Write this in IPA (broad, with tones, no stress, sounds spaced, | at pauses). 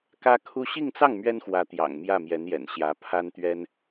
k ä˥ kʰ u˥ ɕ i˥˧ ŋ t͡s ɑ˥˩ ŋ m ɥ ɛ˥ n x w ä˧˥ t̪ j ɑ̰˨˩ ŋ m j ä˥˩ m j ɛ˧˥ n j ɛ̰˨˩ n ɕ j ä˧˥ pʰ a˥ n t̪ ɥ ɛ˥ n